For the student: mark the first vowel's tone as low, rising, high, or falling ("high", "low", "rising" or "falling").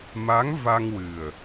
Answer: rising